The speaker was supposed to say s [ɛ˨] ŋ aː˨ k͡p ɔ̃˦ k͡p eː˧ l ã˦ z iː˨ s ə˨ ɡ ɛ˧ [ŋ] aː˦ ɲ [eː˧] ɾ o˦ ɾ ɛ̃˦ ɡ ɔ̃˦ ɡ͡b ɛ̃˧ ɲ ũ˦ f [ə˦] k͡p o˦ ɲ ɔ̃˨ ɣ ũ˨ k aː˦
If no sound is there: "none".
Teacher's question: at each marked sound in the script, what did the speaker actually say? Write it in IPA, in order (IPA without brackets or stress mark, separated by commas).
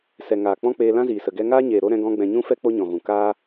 ɛ˨, ŋ, eː˨, ɛ˦